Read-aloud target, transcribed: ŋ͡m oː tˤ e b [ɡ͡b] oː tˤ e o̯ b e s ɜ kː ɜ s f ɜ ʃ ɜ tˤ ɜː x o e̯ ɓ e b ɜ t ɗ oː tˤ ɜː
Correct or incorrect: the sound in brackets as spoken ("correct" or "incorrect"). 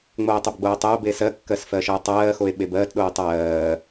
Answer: correct